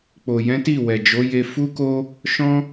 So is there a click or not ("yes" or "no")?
no